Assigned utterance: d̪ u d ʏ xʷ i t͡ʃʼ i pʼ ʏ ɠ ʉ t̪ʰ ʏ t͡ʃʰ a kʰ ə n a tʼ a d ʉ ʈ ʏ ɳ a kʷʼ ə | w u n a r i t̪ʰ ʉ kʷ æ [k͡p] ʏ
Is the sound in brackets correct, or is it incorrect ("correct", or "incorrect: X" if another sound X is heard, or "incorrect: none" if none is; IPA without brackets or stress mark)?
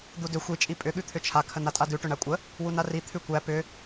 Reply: incorrect: p